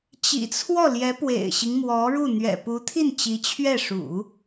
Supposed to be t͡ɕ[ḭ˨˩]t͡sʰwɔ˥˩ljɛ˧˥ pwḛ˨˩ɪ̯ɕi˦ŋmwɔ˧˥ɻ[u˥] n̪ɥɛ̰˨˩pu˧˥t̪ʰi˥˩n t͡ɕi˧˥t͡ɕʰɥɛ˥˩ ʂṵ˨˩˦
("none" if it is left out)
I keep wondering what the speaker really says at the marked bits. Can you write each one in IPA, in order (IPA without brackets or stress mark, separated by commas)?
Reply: ḭ˨˩, u˥˩